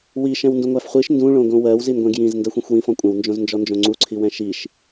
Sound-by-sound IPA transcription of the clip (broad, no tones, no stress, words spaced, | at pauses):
wi ʃɛ̃wndũŋʷæfχʷiʃ ndũ ɭõɡõwɜw zinɡʷɛ̃ɡ jĩz ndɜxʷĩxʷwĩ fɔ̃kʷʼɛ̃w nd͡ʒõznd͡ʒɔnd͡ʒõŋ͡ǀu ǀʰiwɛ̃ʃiʃ